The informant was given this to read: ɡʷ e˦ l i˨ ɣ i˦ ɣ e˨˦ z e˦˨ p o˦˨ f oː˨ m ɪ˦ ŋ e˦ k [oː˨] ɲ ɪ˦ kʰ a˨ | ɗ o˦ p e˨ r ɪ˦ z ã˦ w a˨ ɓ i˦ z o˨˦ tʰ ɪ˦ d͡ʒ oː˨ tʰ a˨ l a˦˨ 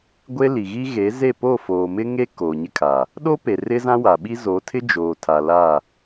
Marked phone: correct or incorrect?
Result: correct